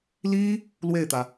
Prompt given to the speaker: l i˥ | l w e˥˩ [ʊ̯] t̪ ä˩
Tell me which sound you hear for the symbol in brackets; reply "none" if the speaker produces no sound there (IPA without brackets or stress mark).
ɪ̯